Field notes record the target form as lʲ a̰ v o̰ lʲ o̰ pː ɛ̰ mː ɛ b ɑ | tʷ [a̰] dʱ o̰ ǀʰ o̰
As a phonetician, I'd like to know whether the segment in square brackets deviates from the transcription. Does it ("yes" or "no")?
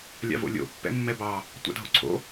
no